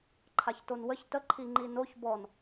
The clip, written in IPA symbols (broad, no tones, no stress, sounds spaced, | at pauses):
ǃʰ a ç t o n w ə ç t ə ǃʰ i ŋ͡ǃ i n o ç b ɔ n